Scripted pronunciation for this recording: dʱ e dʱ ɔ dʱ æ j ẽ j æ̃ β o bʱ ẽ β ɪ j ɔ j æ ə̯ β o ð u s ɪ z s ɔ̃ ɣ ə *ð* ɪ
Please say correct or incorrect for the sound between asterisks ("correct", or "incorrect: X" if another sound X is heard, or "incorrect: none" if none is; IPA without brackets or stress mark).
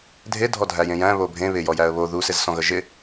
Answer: incorrect: ʒ